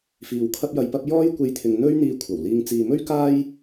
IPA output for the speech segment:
f iː˨ w kʰ ɐ˥ p̚ j ɐ˧ j p ɐ˥ p̚ j ɔː˥ j kʷ e˧ j t̪ʰ ɪ˨ ŋ n̪ ɵ˥ ɥ n̪ iː˧ kʷʰ ɐ˨˩ w l iː˧ ŋ t͡s iː˨ m ɵ˥ ɥ k aː˥ j

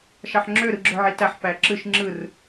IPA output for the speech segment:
ʃ ɑ ħ ŋ͡ǁ ø ɾ ɯ ɡ͡ǁ ø ʕ i t æ ħ p æ ǁ ɯ ʃ ŋ͡ǁ ɯ r

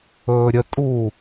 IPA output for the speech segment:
ɵː ɾʲ ə tʼ uː

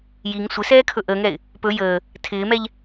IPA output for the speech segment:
j i ŋ sʷ ɪ s ɛː kʰ ɵ ʔ əː ŋ ɛ ɪ̯ | p ɵ j əː | tʰ ɪː m ɛ ʎ

